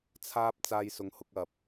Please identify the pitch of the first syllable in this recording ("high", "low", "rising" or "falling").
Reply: high